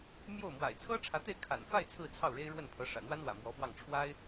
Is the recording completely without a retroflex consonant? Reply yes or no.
no